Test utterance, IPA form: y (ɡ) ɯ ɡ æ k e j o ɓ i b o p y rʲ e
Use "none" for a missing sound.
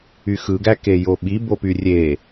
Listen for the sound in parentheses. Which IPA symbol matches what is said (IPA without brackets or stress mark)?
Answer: x